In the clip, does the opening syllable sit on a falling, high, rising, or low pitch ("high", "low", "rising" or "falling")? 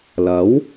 rising